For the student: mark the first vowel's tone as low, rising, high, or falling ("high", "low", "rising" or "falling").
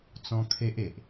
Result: high